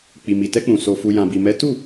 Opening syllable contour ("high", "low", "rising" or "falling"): low